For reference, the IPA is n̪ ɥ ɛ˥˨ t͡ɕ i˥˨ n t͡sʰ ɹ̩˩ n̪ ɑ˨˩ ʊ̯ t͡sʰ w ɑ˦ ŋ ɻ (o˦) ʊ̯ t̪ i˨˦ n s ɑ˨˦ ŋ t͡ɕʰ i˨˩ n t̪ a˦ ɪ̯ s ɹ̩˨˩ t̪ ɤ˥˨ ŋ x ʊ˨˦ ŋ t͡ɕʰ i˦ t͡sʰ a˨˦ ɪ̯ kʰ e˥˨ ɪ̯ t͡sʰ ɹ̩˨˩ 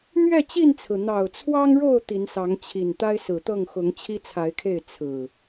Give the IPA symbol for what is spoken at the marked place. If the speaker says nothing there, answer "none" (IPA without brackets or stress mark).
o˥˨